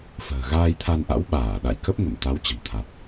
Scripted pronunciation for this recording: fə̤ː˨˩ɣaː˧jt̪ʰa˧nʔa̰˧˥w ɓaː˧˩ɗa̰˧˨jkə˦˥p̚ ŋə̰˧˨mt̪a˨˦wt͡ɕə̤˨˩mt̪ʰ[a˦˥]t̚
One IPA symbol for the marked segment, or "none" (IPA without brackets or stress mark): a˨˩